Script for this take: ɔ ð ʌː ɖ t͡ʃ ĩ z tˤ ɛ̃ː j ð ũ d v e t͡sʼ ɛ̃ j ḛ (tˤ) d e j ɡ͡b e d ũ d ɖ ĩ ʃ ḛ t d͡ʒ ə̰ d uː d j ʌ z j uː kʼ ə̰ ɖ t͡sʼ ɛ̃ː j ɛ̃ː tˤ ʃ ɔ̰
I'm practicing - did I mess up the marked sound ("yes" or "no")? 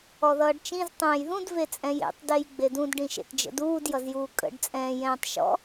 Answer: no